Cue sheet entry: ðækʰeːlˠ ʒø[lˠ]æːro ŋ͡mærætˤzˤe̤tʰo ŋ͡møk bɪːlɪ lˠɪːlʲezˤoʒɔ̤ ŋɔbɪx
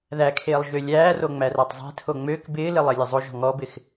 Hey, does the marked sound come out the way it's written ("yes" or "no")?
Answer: no